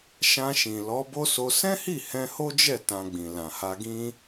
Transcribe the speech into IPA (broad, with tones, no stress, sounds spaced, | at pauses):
ʃ ã˧ ʃ ĩ˨ l ɔ˨˦ b o˦ s o˧ s ɛ̃˦ h i˦˨ h ɛ̃˧ h o˦ d͡ʒ ɛ˦˨ t ã˧ ɡ͡b ĩ˨ l ã˨ h a˧ ɡ ĩ˦